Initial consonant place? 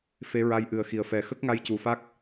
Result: labial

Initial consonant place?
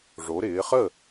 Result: retroflex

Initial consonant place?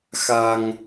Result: velar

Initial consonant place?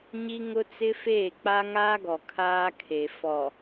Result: palatal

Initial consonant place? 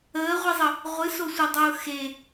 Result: uvular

